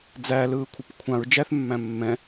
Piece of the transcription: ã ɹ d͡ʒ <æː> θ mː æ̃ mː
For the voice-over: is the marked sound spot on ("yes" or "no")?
no